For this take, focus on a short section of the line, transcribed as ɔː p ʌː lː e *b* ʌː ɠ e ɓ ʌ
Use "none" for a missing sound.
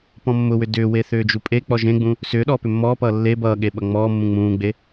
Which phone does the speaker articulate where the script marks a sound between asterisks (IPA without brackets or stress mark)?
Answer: b